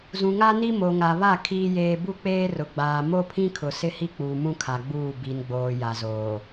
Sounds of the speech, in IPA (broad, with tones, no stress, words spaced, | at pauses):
zũ˨ŋa˦ni˦ mo˨ŋa˨βa˦˨ kʰiː˦jeː˦ bu˦k͡peː˦ rʊ˨ɡ͡baː˨ mo˦pʰĩ˦ kʰʊ˨sɪ˦hi˦k͡puː˨ mũ˦kʰa˨ɡ͡buː˦˨ bi˨nɡ͡boː˨ ja˨zoː˨